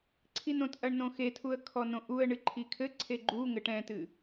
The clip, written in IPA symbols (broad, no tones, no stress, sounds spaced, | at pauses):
ǀʰ i n õ t ʔ ɐ ɳ n õ x e tʰ u ə̯ kʰ ɔ n õ ʔ u ə̯ ɳ ɨ ǃʰ i kʰ ɘ ǀʰ e ɡ͡ǃ u ŋ ɘ ʈ ɛ̃ t ɨ